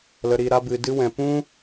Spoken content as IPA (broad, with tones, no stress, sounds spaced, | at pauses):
l ə˧ ɾ i˧ ɾ a˦ b ɨ˧ d ɨ˦ w ɛ̃˧ p ũ˦